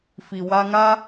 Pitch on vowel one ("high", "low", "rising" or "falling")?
low